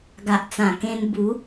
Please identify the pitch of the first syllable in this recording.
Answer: low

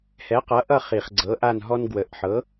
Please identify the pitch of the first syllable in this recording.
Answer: rising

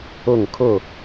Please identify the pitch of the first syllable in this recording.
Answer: falling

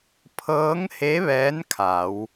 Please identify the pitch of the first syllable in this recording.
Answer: rising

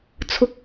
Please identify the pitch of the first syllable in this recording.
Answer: high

